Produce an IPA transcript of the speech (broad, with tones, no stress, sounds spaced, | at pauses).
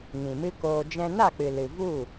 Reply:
ŋ ĩ˨ m ɨ˦ k oː˧ d͡ʒ ɛ̃˧ n a˦˨ k͡p ɨ˨ l ɨ˨ v u˦˨